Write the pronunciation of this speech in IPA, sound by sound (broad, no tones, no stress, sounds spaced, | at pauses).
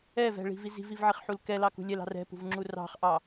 ɛ v ɛ̤ ɭ i̤ v i z i̤ v i v ʕ i χ ħ u l k ɛ l ɑ k ṳ lʲ ɛ l ɑ̤ r ɛ̤ p ṳ v ŋ͡ǁ u r ɑ̤ χ ʔ ɑ